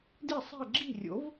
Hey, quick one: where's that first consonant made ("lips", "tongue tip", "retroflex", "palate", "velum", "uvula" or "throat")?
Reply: tongue tip